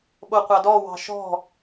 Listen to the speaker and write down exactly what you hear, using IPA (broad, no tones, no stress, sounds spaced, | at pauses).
ɓ o qʷ ɑ d ɔ w ɑ̤ ʃ ɔ̤